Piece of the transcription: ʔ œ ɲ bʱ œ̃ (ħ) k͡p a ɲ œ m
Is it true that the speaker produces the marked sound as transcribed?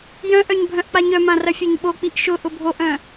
no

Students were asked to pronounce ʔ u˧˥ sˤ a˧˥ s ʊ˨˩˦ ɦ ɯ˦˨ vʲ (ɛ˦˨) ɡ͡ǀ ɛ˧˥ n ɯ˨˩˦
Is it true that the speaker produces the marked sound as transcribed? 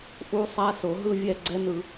yes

